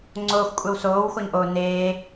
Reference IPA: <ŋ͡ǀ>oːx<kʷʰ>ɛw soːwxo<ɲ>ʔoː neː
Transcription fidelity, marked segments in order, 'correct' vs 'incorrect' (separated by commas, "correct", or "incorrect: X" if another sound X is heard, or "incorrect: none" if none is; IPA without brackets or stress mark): correct, incorrect: kʷʼ, correct